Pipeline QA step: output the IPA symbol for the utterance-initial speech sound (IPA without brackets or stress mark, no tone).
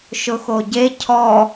ʃ